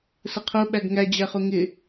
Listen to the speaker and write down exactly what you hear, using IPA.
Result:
s ə qʰ ʊ ɓ æ ɡ ŋ æ d͡ʑ æ χ ʊ ŋ ɪ

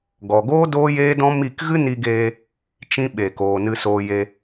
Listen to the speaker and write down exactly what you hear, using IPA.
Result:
ɡ ɔ˨ ɡ oː˦ d oː˦ j eː˦ d ɔ̃˦ m i˦˨ k ɣ ɨ˦ n i˧ ɡ eː˧ | t͡ʃ ĩ˧ ɓ e˨ k oː˨ n ɨ˧ s oː˧ j e˧

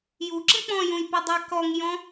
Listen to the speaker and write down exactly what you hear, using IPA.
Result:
j u ǁ ə̃ k͡p ɔ̃ j ũ j p ɔ dˤ ɜ k ɔ ŋ j ɔ̃

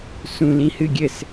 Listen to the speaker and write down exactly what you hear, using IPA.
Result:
s ũ l ĩ h ɨ ɡʲ ɘ s

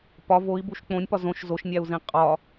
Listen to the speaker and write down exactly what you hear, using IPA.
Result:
p ɒ v o i̯ b u ʃ k͡p õ nʲ p ɒ z õ ʃ z o ʃ nʲ æ u̯ z ĩ qʼ ɒ

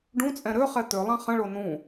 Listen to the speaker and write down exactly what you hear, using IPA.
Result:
ɖ ũ t͡sʼ ɛ̃ ɾ ø χ ɛ t̪ ø lˠ ã χ ə̃ ɭ o n ũ

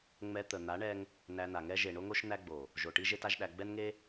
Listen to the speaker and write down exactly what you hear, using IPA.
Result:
ŋ͡m ɛ˧ t̪ ə˨ n̪ a˨˦ ɳ ɛ˧ ŋ | n æ˧ n̪ a˨ ŋ ɛ˦ ʒ e˨ ɳ o˦ ŋ o˦ ʃ n̪ æ˦ ɡ͡b o˨ | ʒ o˨ ʈ i˦ ʒ e˦ t a˦ ʒ ɗ æ˧ ɡ͡b ɛ˦ n ŋ e˦

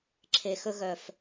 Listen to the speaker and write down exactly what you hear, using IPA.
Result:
ǁʰ e˨ x ɵ˧ ɣ œ˨ f

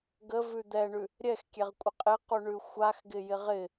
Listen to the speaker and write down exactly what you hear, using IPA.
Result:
ɡ ə v ʉ d̪ ɛ ɳ ʉ | ɾʲ ɛ x kʲ ɛ ʁ kʷʼ ɪ qʼ ɪ q u ɳ ʉ xʷ a x ɡ ɪ j ɪ ʁ ɪ

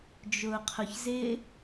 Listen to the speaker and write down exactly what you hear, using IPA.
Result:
d͡ʒ ʊː qʰ ʊ ç z ɪː

